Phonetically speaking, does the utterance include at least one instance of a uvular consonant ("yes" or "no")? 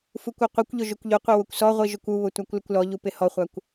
yes